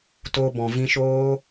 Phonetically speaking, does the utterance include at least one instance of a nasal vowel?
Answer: yes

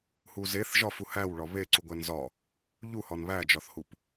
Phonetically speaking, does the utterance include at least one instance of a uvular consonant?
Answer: no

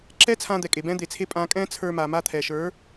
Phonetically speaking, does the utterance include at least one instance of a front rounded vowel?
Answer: no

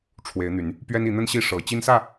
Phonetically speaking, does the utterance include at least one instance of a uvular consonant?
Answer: no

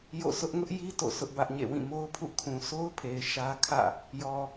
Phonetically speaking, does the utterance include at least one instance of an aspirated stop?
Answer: yes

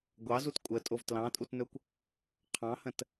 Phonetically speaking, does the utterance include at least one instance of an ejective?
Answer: yes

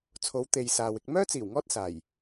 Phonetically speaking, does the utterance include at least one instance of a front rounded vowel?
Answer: yes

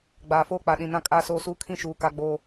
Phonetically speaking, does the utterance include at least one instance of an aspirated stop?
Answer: yes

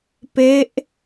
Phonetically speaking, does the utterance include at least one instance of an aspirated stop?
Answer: no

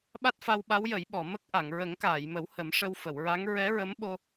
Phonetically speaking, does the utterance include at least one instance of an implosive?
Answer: yes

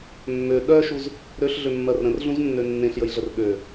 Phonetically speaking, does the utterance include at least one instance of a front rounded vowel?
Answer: yes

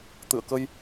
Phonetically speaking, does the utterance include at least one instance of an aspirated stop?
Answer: no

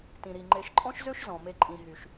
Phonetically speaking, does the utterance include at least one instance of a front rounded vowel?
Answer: yes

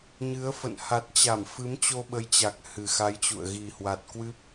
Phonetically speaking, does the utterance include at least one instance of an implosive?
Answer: yes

